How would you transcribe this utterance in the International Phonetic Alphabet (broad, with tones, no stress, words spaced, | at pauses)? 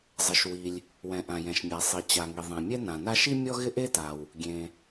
zˤɪ˩ʃwi˩lʲ | wɛ̃˩ʔã˩jɛ̃˩ʃmʲa˩ sˤi˩ t͡ɕa˩ŋi˩ ðˤɛ̃˩ mʲɛ˥nã˩na˥ ʃi˥ mʲɔ˥ɣɪ˥ʔe˥ta˩w | ɡʲẽ˩